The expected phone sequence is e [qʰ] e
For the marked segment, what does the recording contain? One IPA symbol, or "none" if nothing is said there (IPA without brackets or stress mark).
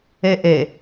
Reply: ʔ